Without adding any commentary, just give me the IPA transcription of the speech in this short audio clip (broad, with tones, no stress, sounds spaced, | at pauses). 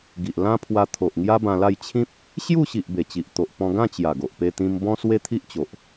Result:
ɡ i˨ ʔ l ã˦ pʰ w a˧ t̪ʰ o˨ ʔ ŋ j a˦ b ã˧ l a˥˧ j t͡ɕʰ ĩ˦ p̚ | ɕ j u˥˧ ɕ i˨ ʔ b e˨˩ t͡ɕ i˨ ʔ t̪ o˨ ʔ p ɔ̃˧ ɡ ã˥˧ t͡ɕ j a˨˩ ɡ o˨ ʔ p e˧ t̪ ĩ˧ m b ɔ̃˦ s w e˦ t̪ʰ i˦ ʔ t͡ɕ o˨ ʔ